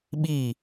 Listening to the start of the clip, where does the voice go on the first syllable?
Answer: falling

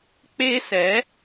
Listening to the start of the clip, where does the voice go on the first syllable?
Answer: high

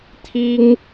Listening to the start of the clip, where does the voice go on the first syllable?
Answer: high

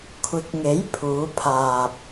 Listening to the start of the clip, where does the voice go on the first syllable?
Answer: rising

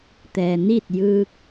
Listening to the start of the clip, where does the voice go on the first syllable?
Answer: low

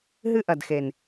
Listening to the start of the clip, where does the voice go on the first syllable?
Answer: high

